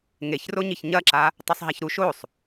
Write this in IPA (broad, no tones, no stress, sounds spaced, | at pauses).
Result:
ŋ e ç r o ɲ i ç ɲ ɐ ǁ a | tˤ ɵ sˤ ɦ a ç ɾ u ʃ o sˤ